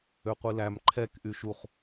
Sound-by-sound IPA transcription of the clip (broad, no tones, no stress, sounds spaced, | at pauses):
ø qʷ i l æ m ǃʰ ɛ k ʔ y ʃ u χ